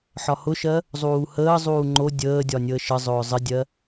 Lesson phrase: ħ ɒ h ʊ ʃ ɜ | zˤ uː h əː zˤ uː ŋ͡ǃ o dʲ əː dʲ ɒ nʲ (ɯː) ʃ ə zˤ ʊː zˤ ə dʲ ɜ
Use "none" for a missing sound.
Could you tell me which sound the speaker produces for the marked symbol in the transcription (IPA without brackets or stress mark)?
əː